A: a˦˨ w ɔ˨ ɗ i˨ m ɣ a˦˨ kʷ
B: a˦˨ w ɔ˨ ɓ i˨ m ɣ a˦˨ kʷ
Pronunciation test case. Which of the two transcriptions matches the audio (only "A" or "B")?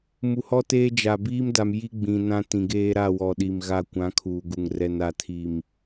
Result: A